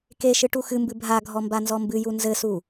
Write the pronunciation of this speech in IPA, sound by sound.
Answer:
k e ʃ ɨ ʈ u x ɨ m b ɨ bʱ a ɡʱ ɔ m b a n z ɔ m b ɨ j u n z ɘ s u

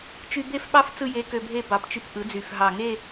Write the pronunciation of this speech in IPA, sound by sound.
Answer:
t͡ʃ y˧ b e˥˧ f ɓ ɑ˥˧ f t͡s ɯ˥˧ j e˧˥ k ø˧ bʱ e˥˧ b ɑ˨˩ p t͡ʃ y˧ p ʔ ɯ˩˥ d͡z y˨˩ f ɦ ɑ˨˩ ŋ e˥˧

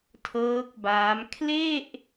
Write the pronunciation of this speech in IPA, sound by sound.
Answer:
tʰ ɤː˦˥ k̚ b aː˦˥ m kʰ l e˥˩ ʔ

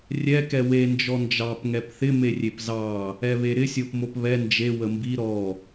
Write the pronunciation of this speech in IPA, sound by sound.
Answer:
rʲ ɛ k ɛ w e n d͡ʒ ɔ n d͡ʒ ɑ p ŋ ɛ p θ ɪ m e rʲ e p z ɑ | ɛ β e ɾ ɪ sʲ o p m o p β ɛ n d͡ʒ e w ə m b i ɾ ɔ

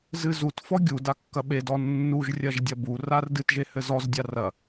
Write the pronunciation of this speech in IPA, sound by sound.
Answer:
z ɨ z u t f ɔ ɡʲ u d a kː ɐ ɓ e d ɔ nː u ʒ rʲ ɐ ʒ dʲ ɐ b u r a r d ɨ t ʒ e h ɘ z ɔ z dʲ a r ɐ

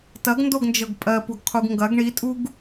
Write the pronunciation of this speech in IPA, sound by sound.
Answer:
t ɐ ɡ n d o ɡ n d͡ʒ ɤ ɡ pʼ ɜ p u ɡ qʰ u ɡ ŋ ɡ ɐ ɡ ɳ i tʼ u ɡ

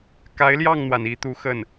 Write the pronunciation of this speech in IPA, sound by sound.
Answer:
k a˧˥ ɪ̯ l j ɑ˥˩ ŋ n̪ w a˩ n i˧˥ t̪ u˧˥ x ə˥˩ n

